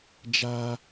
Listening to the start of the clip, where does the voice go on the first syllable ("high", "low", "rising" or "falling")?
high